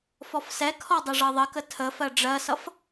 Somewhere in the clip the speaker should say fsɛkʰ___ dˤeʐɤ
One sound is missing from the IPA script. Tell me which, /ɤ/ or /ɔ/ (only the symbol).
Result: ɔ